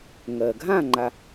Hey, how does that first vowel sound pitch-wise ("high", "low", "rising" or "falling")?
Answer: low